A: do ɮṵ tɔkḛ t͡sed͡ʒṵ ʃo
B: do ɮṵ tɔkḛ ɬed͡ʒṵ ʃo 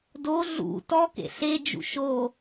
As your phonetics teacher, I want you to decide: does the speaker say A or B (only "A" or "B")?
B